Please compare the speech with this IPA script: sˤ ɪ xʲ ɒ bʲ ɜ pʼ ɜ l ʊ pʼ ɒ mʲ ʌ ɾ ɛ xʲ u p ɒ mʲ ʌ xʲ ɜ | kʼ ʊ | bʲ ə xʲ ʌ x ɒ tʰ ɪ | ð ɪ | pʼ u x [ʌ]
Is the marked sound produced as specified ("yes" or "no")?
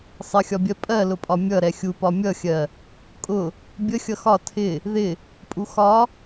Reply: no